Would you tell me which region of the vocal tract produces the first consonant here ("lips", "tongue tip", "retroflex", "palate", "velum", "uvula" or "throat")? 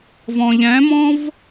lips